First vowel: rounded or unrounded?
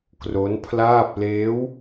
rounded